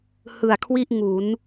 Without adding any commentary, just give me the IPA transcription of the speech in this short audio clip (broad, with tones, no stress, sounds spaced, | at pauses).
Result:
h ɯ˨˩ a̯ kʰ w i˥˩ ʔ ŋ u˩˦ n